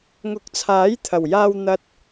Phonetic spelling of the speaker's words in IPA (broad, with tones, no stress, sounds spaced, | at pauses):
ŋ ʊ˨˥ k̚ t͡sʰ aː˨˥ j t̪ʰ ɐ˨˩ w j aː˧ w n̪ ɐ˨ t̚